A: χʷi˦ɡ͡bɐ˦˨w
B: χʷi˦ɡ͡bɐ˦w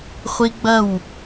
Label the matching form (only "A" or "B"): A